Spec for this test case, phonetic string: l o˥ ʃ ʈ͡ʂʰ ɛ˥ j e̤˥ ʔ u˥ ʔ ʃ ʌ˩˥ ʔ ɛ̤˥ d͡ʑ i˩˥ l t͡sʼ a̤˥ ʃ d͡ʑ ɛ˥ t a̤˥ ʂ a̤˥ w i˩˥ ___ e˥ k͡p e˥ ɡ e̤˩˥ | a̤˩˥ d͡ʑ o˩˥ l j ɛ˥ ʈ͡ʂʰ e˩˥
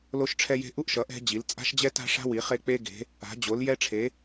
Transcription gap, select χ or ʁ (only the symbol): χ